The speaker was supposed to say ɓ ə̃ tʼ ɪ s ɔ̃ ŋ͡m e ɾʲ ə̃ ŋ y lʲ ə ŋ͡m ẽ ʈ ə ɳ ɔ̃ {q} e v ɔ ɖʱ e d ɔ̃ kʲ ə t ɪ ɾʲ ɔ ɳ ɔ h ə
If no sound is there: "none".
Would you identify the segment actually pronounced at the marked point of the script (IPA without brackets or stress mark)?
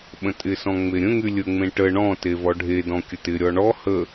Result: t